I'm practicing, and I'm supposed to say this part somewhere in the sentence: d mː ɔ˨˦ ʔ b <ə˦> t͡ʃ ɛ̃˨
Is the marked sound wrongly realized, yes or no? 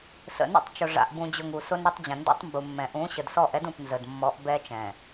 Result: yes